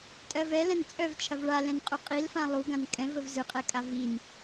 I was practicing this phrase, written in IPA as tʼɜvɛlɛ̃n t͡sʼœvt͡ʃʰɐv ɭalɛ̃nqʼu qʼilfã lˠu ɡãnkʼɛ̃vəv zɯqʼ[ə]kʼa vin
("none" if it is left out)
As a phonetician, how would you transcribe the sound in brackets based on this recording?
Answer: ɛ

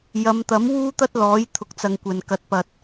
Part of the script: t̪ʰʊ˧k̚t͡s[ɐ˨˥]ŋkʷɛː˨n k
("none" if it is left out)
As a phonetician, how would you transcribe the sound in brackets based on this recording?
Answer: ɐ˧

